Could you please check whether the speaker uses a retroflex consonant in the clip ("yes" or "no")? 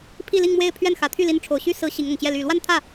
yes